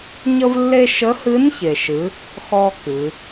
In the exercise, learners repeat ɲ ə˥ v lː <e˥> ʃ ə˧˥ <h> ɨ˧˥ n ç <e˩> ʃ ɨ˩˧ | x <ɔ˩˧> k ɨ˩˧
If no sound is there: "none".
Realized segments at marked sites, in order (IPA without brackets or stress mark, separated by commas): e˥, h, e˩, ɔ˥